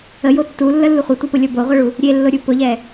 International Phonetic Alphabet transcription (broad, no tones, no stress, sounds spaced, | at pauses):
ə j o tː u lː ə lː u χʷ ɛ tʷ e p ʊ lʲ ɤ b o ʁʷ ɤ ɭ u | ɾʲ e lː ʊ ɾʲ u p ʊ ʎ ɛ